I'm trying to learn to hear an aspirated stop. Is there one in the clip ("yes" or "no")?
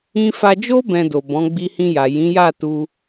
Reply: no